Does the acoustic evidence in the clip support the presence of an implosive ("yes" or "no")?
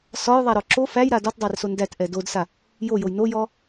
no